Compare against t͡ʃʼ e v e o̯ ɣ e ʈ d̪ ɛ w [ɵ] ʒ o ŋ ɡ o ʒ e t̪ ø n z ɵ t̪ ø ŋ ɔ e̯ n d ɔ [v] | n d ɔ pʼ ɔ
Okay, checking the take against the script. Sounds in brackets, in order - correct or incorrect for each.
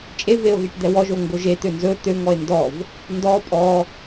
incorrect: ɔ, correct

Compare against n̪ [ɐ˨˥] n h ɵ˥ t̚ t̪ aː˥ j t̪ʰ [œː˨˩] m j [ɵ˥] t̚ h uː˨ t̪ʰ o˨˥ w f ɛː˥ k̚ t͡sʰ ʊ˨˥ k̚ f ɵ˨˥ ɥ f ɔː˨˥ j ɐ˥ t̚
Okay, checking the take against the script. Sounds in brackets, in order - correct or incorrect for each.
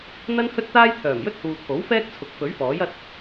incorrect: ɐ˥, correct, correct

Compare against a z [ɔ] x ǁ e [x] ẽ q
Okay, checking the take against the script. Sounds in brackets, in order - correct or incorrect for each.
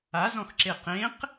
incorrect: ɔ̃, incorrect: q

